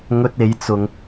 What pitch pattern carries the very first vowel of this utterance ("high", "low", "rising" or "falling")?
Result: high